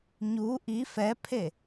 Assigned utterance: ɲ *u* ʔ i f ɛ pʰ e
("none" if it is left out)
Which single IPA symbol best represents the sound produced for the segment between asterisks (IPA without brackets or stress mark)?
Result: u